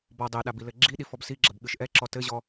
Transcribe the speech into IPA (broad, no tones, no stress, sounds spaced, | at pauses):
b ɔ dˤ e ɗ a b i l ɘ ɡ͡ǁ i ɗ i f ɔ b s i ɡ͡ǁ ɐ b ɠ ɨ ʃ ʔ ɛ ǁ ɔ t ɘ ʑ ɔ